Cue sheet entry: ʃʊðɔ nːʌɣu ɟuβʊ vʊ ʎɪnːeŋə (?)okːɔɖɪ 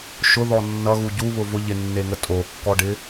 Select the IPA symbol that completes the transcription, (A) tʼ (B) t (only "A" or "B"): A